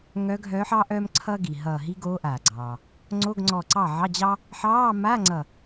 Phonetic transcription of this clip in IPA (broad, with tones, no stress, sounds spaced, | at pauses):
ŋ œ˧˥ ɡʱ œː˧˥ ħ ɑ˥ ʔ œː˥ m ǀʰ ʌː˥ ɡ i˩ ɦ ʌː˧˩ ɦ i˥ ɡ oː˧˥ ʔ aː˩ ɡ͡ǀ ɑː˩ | ŋ͡ǀ o˧˥˧ ɡ ŋ͡ǀ ɔ˧˩ ǀ ɑ˥˩ ʕ ɑ˧˥˧ d͡ʑ ɑ˥ | ħ ɑː˧˥˧ m a˧˥˧ ŋ͡ǀ ʌ˧˩